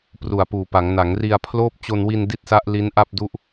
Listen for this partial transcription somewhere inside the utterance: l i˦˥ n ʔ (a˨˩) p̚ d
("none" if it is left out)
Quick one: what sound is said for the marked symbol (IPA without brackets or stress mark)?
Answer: a˥˩